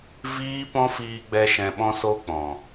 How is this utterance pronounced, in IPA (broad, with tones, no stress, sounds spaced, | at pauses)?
v iː˦ p ɔ̃˦ f iː˧ ɡ͡b ɛ˧ ʃ ɛ̃˧ ɓ ɔ̃˦ s o˦ k͡p ɔ̃˨